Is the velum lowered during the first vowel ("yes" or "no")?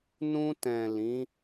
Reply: yes